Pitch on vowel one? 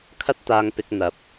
high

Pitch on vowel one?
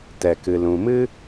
low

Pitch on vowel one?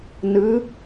rising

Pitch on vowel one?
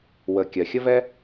low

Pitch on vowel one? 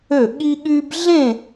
falling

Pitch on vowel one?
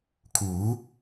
rising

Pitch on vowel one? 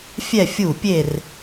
falling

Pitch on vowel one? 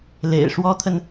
low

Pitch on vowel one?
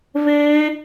high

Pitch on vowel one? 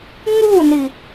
falling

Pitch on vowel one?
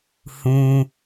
high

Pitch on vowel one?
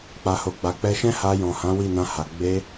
low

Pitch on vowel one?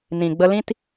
low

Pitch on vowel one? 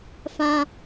high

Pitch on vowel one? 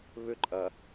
falling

